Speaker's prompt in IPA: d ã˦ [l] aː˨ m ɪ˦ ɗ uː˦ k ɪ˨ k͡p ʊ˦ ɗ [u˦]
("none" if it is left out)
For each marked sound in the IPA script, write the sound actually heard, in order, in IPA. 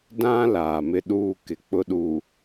l, u˨

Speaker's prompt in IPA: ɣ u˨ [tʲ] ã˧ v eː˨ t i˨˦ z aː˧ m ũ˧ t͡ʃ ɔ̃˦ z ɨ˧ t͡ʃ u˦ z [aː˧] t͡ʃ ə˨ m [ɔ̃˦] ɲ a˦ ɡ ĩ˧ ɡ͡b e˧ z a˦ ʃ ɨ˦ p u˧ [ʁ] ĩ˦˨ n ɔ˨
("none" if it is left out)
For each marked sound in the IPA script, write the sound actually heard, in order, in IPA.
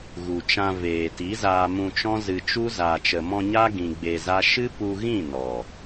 t͡ʃ, aː˨, ɔ̃˧, ɣ

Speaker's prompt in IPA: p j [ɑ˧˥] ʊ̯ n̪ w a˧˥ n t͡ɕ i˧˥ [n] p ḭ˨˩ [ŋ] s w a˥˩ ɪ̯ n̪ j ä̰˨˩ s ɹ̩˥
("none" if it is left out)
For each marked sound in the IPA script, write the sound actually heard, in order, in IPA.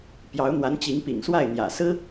ɑ˧˥, ŋ, ŋ

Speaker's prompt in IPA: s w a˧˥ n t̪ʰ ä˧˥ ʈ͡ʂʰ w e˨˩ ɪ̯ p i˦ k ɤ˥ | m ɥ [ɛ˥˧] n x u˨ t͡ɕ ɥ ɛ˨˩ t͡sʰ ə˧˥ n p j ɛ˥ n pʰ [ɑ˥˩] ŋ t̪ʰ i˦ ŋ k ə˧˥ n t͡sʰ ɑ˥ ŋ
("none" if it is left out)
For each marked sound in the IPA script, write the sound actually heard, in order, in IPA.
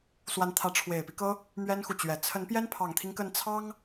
ɛ˥, ɑ˨˩

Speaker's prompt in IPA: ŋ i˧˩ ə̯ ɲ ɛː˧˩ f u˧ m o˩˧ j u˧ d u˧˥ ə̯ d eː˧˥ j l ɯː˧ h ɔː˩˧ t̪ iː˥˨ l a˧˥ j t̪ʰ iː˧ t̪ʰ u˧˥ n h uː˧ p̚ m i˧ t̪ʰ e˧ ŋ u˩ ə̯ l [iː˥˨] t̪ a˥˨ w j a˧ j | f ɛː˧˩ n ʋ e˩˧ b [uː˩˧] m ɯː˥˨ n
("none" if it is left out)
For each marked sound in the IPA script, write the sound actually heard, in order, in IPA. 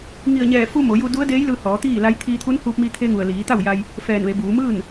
iː˩˧, uː˩˧

